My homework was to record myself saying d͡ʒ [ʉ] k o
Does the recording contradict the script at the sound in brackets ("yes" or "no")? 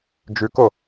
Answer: no